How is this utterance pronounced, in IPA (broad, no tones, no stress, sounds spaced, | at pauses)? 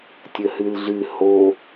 tʲ ə h ɨ l ɮ ɨ h o